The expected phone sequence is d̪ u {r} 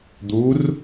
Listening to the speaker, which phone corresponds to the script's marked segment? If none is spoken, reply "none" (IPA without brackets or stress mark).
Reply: r